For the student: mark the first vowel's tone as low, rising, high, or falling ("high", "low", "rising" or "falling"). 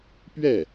falling